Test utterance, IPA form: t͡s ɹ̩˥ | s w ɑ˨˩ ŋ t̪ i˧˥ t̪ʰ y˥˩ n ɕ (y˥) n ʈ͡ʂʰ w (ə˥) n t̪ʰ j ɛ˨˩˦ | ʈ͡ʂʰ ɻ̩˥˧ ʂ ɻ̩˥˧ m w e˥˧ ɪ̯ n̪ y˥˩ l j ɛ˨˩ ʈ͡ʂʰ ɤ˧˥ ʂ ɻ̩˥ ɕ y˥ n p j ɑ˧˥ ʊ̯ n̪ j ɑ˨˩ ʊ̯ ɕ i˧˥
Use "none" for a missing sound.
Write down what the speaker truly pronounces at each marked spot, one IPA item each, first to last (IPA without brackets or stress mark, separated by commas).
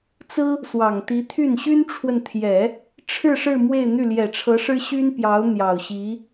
y˥, ə˨